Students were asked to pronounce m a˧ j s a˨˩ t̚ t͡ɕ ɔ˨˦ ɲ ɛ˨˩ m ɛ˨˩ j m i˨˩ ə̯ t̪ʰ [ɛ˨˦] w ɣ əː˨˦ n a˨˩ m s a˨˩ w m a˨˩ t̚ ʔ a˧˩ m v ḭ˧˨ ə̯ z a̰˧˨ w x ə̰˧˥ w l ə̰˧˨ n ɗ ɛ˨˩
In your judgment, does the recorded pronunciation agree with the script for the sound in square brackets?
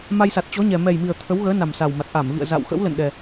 no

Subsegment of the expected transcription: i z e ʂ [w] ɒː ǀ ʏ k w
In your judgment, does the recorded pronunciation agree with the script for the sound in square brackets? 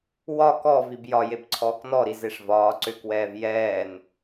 no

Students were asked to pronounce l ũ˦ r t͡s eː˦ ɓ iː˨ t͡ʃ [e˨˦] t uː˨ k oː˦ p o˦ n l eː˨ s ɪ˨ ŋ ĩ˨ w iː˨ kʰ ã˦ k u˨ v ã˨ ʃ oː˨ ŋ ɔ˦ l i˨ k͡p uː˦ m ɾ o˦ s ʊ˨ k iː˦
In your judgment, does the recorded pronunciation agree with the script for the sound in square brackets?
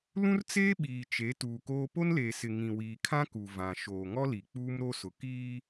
yes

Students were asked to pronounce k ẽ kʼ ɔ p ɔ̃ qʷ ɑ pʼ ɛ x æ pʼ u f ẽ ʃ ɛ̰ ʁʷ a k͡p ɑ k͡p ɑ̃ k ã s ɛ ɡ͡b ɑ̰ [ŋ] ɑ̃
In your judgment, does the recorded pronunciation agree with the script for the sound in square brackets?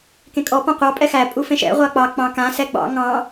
yes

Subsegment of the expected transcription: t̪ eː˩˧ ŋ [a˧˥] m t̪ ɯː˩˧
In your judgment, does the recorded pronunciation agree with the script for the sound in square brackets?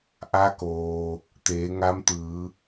yes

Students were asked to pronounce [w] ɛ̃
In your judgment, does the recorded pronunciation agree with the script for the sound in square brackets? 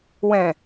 yes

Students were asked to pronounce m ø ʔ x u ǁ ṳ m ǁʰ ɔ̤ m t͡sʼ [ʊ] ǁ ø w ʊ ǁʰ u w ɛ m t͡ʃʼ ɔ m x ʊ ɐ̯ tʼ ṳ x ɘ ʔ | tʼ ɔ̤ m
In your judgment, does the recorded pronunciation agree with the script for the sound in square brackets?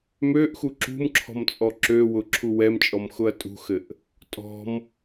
no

